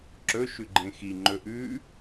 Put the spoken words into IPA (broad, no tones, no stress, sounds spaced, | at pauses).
ǁ ɵ ʃ ʉ ɡ͡ǃ ẽ x i ŋ͡ǃ ɵ ʔ ʉ